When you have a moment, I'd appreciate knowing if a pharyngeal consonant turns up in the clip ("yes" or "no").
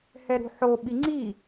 yes